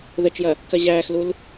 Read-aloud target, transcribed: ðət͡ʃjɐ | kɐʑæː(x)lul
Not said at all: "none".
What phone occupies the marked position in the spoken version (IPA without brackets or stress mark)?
x